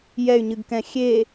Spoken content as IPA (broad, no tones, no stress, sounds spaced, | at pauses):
j ɛ y̯ ɲ ɨ ɡ k ɛ̃ xʲ e